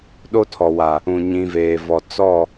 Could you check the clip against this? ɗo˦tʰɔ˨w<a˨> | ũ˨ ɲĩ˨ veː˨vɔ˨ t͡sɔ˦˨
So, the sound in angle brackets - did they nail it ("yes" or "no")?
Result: yes